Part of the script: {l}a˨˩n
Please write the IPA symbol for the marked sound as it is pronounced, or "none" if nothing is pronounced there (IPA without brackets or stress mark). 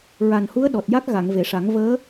ɹ